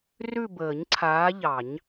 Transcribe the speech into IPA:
rʉ˦˨bəː˨˩˦ɲǀʰaː˨˦ʎɑ˨˩˦ɲ

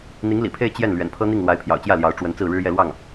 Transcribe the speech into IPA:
n̪i˧˥ŋlḭ˨˩pʰe˥˧ɪ̯ t͡ɕjɛ˥˩n lɥɛ̰˨˩npʰɤ˥n̪i˥˩ŋ lwa˧˥ɪ̯pʰjɑ̰˨˩ʊ̯t͡ɕjä˥˩ ljɑ˧˥ʊ̯ʈ͡ʂwə˧˥nt͡sɹ̩˥˩ɻɻ̩˥ jɛ˥˧lwɑ˥˩ŋ

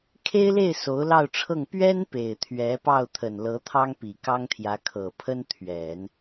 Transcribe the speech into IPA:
kʰe˥ɪ̯le˥˩ɪ̯ so˧˥ʊ̯lɑ˥˧ʊ̯ʈ͡ʂʰɤ˥˩ŋ pɥɛ˥n pe˨˩ɪ̯t̪ʰɥɛ˧˥ pɑ˥˩ʊ̯t̪ʰə˨˩nlɤ˧˥ t̪ʰɑ˥ŋpi˨˩kɑ˥ŋt̪ʰjä˧˥ kʰɤ˨˩pʰə˥n t̪ʰɥɛ˨˩˦n

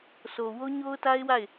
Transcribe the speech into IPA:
sʰo˨ wo˦ɲo˦ʊ̯ta˦ɪ̯ wa˦˨ɪ̯

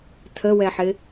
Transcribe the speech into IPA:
tʰəwɛħɪ

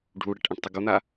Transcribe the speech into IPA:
ɖʱuɽɛʈ ʔãʈtˤɯɡon̪a

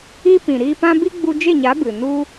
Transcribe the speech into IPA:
i˦ pĩ˨ ɾiː˧pã˦ bi˦ɡ͡bu˧d͡ʒe˦˨ɲa˨˦ bɨ˨nu˦

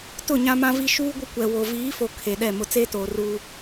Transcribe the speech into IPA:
tʊ˦˨ɲã˦mã˦vi˦ ʃuː˦ɡʷɪ˦kʷɛ˨wo˨ viː˨˦fo˨ kʰe˨ɗɛ˦˨ mʊ˨t͡seː˦toː˨ ruː˦

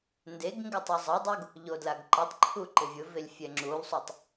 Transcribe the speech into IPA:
ndeɡŋɡɪ tˤozˤadˤoɡ | ʎodlaɡǃatˤǃʰu ǃɪvʲʊvelʲ fʲɛŋ͡ǁulˠsˤutˤ

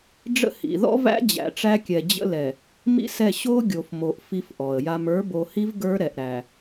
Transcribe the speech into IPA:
ɖ͡ʐə̰˦hḭ˨ ðɔ̰˦væ̰˦ d͡ʑæ̰˨ʈ͡ʂæ˦kʲɛ˨ d͡ʑə̰˦lɛ˨ | mḭ˦sɛ˦˨ ɕo˦ ɡʲo˨fmo˨ʔ fi˦fʔɔ˨ə̯ja˦m ə˞˨˦bo˨hi˦v ɡə˞˦ɾɛ˨ʔ ɾæ˨

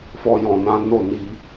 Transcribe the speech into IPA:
fɔ˧jɔ̃˨nã˨˦ no˦˨ni˧

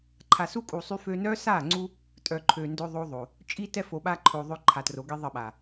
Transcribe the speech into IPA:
ǃʰa˨su˦kʼu˨ sˤy˦fø˦ nœ˦sa˦˨ŋ͡ǀu˦ | tʼœ˨ǃʰø˨ndø˦ ðˤo˦ðˤo˨ | t͡ʃʼi˦tɛ˦fo˨ ɓa˦ ǃʰo˨ ðˤø˦ǃʰa˨tro˨˦ɡi˦ ðˤə˦˨ɓa˨

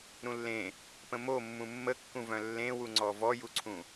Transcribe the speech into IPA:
ɾũlːẽ | pə̃momːũ mːəkːũvœ̃ lːẽwuŋ͡ǀɔ vɔjuǀʰũ

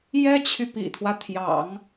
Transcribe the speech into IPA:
jɛ˥t͡ɕʰy˨ pḭ˨˩t̪ʰwä˦t̪ʰjɑ̰˨˩˦ŋ

